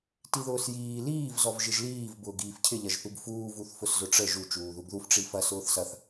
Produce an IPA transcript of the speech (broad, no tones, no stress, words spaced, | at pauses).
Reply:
tiðʊːsjiː liːv zɔvʒɪʒliːv bʊːɡiːfcʰɪ ʎɐʒθuɡfuː vuθfʊszʊʈ͡ʂə ʒu t͡ʃuːðuɡðuf ʈ͡ʂifɐ sʊːθsɐθ